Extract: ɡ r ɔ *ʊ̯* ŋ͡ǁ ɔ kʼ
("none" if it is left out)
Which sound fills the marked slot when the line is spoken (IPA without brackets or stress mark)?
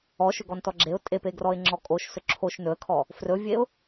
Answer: ɪ̯